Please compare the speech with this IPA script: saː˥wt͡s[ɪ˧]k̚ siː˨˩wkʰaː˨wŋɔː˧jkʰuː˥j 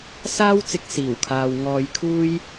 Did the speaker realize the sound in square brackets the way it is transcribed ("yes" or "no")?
yes